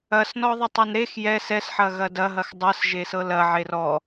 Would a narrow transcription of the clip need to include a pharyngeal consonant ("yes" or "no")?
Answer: yes